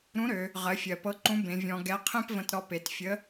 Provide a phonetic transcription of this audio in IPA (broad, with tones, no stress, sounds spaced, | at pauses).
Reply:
ɾ ũ˧˥ ɾ ø˩˧ | ʁ ɜ˩˧ fʲ ɜ˩ p ɤ˧˥ ǃ ũ˧˥ b ẽ˩˧ vʲ ɔ̃˧ ɡ ɛ˧˥ qʰ ẽ˥ p v ə̃˧ t ɾ ɔ˧ p e˩˧ t fʲ ə˧˥